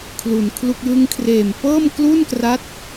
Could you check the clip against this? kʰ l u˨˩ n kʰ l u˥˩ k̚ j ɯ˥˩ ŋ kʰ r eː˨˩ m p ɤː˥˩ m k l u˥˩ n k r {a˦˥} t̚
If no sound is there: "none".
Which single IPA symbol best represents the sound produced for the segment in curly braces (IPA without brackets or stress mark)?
a˦˥